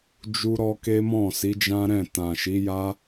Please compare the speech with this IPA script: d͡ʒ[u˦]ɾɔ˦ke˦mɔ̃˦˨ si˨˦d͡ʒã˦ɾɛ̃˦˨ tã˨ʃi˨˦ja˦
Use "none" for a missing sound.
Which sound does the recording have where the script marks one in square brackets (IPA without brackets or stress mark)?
u˦